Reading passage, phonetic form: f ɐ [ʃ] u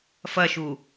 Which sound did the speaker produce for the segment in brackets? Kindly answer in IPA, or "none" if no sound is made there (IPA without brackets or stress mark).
ʃ